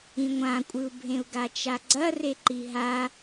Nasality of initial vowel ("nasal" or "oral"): nasal